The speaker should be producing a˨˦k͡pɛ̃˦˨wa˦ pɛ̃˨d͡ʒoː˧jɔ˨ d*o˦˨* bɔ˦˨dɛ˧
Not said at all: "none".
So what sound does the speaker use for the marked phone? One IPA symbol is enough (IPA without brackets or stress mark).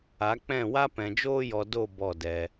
o˦˨